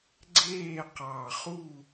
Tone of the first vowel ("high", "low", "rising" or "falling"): falling